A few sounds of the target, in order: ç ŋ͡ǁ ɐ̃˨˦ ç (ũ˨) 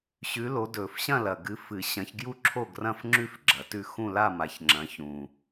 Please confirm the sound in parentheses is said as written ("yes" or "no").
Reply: yes